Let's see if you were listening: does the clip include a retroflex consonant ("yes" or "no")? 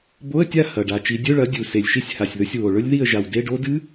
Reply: yes